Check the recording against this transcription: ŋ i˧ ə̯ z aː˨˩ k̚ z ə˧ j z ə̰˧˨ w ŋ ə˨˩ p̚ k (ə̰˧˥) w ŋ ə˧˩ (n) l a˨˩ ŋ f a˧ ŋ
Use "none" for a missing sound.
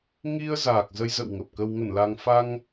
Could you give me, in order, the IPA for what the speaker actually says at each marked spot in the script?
ə˨˩, n

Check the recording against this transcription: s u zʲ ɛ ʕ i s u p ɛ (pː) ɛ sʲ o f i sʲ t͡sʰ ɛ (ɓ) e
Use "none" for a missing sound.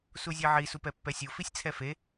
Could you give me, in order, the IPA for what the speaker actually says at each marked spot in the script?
pː, f

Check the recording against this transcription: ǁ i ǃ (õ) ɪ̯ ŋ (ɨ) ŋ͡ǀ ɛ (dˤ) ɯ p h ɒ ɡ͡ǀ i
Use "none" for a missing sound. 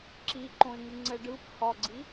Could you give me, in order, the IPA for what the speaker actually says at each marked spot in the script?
õ, ɨ, ɖ

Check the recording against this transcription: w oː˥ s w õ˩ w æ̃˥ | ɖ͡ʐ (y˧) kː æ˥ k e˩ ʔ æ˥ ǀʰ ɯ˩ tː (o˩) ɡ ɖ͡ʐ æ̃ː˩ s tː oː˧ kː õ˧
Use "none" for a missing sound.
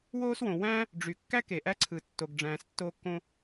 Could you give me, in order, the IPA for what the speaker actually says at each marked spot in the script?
y˩, o˩

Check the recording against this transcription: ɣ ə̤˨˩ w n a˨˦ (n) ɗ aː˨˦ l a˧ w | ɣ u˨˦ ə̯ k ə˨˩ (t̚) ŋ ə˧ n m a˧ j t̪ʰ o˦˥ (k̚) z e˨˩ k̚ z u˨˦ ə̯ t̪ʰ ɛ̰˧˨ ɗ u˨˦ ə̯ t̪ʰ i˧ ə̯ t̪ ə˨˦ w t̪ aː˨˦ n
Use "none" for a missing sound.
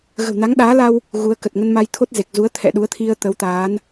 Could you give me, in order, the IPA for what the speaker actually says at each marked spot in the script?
ŋ, t̚, t̚

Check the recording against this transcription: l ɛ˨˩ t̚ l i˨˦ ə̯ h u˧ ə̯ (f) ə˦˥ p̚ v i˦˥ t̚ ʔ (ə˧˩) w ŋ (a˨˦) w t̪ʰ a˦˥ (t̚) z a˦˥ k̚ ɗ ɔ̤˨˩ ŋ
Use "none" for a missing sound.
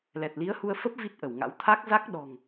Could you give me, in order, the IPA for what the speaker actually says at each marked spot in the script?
f, ə˧˩, a̰˧˥, k̚

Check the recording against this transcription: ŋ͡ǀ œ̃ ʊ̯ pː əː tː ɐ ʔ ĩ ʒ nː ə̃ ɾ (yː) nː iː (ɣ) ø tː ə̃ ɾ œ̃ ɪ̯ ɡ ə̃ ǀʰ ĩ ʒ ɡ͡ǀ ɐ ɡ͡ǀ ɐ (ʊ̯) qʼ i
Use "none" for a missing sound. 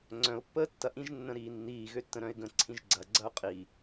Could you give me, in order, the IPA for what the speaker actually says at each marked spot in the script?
iː, ɣ, ʊ̯

